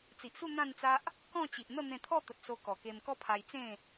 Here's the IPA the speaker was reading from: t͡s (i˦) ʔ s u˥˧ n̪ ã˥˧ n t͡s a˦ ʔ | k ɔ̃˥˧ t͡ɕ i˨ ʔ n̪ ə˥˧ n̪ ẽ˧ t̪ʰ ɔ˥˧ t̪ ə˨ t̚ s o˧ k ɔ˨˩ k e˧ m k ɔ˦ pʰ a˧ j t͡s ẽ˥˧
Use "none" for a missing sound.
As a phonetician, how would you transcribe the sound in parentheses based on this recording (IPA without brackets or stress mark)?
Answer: i˨